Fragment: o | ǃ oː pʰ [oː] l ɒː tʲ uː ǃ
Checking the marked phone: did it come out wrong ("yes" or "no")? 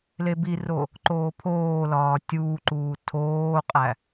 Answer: no